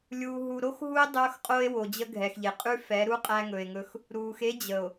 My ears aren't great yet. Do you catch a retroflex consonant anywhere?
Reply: no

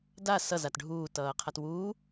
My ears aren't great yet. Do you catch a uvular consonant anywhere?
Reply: yes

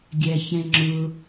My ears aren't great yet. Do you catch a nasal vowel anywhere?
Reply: yes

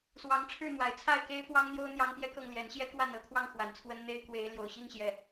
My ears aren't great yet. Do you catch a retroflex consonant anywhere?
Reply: yes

